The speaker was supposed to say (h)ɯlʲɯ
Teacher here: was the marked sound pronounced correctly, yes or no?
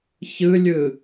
no